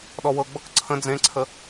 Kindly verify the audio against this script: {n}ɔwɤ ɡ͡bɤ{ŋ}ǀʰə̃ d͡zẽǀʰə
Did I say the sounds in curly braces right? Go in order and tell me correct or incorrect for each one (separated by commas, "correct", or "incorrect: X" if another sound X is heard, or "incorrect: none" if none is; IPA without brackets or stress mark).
incorrect: ɗ, incorrect: k